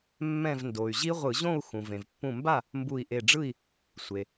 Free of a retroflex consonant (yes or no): no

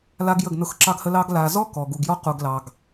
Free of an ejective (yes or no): yes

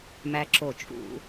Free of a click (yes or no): no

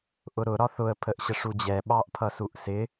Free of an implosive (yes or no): no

